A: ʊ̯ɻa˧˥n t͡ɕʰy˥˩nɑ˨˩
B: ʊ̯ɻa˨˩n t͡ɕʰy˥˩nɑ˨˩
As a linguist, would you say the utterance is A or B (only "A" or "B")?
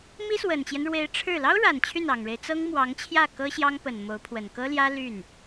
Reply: B